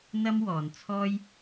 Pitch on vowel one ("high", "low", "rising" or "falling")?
high